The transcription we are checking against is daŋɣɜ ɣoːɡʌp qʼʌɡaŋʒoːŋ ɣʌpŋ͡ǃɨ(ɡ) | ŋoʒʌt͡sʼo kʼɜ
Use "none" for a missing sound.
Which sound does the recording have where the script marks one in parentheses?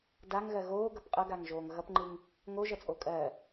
ŋ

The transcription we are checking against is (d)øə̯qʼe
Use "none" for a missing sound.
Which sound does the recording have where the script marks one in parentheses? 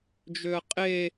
d͡ʒ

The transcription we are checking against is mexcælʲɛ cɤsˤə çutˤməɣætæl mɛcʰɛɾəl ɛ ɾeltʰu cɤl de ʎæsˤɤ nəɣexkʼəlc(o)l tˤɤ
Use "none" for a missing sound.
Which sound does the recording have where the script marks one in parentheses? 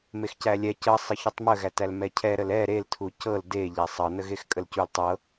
u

